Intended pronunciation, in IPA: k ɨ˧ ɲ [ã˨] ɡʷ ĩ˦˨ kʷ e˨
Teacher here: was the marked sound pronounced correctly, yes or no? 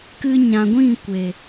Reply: yes